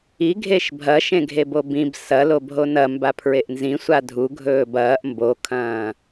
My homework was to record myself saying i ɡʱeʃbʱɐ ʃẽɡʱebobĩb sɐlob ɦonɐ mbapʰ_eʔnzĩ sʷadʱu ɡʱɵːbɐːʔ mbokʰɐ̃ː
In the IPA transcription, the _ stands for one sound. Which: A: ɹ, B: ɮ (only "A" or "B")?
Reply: A